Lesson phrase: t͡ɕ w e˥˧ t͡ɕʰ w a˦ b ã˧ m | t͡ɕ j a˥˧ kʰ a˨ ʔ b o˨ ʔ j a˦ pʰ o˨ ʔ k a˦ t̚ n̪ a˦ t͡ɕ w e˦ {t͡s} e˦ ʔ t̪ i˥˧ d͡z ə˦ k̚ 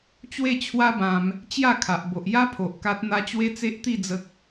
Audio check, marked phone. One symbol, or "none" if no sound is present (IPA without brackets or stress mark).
t͡s